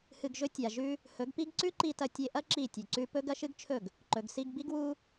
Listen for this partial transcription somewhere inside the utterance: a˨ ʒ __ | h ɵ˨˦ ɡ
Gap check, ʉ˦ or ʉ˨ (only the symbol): ʉ˦